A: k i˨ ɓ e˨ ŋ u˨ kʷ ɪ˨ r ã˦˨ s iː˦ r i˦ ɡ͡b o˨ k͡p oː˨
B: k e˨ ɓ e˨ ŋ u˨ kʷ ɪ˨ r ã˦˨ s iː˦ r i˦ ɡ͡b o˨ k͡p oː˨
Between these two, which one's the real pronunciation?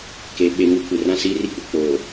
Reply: B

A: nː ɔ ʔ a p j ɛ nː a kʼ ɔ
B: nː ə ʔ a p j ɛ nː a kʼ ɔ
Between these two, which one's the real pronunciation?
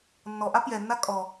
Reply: A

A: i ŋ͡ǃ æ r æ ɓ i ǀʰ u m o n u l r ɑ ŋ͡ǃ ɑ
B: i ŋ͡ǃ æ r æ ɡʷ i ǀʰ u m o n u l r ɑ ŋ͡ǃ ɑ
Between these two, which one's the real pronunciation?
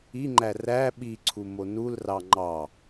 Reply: A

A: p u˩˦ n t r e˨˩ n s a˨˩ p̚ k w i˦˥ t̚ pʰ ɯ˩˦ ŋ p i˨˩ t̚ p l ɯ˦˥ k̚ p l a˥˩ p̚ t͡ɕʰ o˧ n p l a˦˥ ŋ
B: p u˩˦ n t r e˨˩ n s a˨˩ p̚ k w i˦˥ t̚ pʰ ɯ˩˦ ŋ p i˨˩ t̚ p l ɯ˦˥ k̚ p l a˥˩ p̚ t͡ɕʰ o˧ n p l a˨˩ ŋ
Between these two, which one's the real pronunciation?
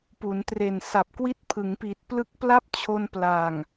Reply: B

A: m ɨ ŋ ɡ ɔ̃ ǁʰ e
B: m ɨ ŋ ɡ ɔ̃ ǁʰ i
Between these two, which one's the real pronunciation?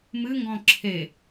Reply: A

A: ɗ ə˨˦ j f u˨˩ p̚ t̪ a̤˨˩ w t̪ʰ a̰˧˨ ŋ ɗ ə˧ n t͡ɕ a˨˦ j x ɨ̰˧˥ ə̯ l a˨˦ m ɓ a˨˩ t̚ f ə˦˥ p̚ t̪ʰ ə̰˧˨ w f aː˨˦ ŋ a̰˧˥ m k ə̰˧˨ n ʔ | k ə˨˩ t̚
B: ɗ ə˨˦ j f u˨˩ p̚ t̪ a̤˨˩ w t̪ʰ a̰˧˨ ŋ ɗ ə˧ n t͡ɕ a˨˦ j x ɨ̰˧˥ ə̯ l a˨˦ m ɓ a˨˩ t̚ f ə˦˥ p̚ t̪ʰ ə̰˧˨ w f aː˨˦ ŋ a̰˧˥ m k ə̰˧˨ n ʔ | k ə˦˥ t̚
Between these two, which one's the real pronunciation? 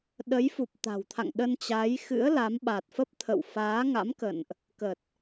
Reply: A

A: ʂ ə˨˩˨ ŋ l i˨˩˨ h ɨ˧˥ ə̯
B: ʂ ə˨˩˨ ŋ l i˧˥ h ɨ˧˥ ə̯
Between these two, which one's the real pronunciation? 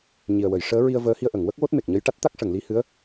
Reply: B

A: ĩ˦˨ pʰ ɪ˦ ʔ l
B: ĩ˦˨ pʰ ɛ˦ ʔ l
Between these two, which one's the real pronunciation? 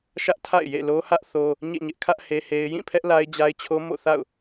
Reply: B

